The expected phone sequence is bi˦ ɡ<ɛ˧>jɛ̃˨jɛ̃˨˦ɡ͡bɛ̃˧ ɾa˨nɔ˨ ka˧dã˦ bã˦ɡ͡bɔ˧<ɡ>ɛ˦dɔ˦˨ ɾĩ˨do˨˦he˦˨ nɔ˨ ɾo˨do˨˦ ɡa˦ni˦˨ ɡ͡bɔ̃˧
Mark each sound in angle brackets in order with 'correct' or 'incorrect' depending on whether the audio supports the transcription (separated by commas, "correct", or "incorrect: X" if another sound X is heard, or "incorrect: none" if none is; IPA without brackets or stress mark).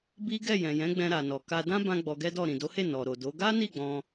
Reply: incorrect: ɛ˦˨, correct